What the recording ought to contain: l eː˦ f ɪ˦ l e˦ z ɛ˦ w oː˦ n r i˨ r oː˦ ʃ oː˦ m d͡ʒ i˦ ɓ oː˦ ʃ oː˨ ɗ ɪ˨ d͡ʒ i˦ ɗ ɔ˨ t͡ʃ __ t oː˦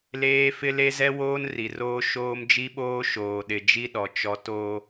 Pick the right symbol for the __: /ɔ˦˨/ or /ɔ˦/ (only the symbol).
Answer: ɔ˦